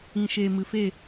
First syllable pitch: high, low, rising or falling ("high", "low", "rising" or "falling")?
low